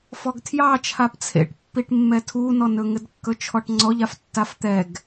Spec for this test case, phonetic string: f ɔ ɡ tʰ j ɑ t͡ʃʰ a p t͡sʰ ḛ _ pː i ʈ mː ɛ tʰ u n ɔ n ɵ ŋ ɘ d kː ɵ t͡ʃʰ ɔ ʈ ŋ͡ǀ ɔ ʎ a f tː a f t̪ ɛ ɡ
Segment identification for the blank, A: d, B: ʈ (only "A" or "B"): B